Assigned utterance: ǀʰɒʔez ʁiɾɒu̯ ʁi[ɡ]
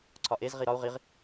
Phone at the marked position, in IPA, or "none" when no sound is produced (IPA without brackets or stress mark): ʁ